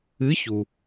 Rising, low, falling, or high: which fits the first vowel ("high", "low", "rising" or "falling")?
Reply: rising